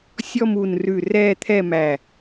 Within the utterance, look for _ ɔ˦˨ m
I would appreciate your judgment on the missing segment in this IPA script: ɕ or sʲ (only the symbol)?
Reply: sʲ